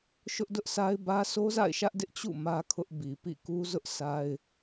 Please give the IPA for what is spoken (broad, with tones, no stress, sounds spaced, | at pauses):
ʃ ʊ˦ ʔ d ʊ˦ ʔ s a˦ ɪ̯ b ä˦ s o˦ z a̰˦˨ ɪ̯ ʃ ä˦ ʔ d ɪ˦ ʔ t͡ɕ ṵ˦˨ m ä˦ kʰ ʊ˦ ʔ b i˨ p ḭ˦˨ k u˦ z ʊ˦ ʔ s a˦ ɪ̯